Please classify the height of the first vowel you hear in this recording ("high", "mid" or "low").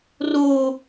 mid